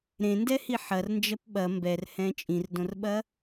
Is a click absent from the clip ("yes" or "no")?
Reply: yes